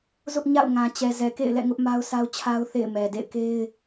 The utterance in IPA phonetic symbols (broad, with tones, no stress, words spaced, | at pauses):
zʊ˦ʔɲa̰˦˨ʊ̯ ŋã˨t͡ɕɛ˨ zɛ˨kḛ˦˨ɪ̯lɛ̰˦˨ ŋʊ˦ʔma˦ʊ̯sa˦ʊ̯t͡ɕʰa˦ʊ̯ θḛ˦˨ɪ̯mɛ˨dḛ˦˨ɪ̯ ke˦ɪ̯